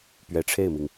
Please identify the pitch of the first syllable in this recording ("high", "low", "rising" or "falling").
rising